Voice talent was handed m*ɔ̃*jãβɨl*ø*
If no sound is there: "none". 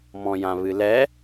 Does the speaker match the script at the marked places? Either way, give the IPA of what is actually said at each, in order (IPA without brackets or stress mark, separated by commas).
ɔ̃, ɛ